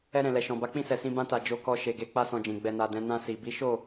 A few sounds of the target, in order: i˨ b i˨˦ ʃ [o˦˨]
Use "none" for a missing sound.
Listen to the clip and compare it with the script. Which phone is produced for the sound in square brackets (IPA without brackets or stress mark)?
o˦˨